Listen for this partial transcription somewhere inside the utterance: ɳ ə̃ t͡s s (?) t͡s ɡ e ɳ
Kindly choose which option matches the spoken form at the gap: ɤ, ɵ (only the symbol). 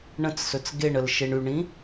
ɵ